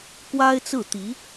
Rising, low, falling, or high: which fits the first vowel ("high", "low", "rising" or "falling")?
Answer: high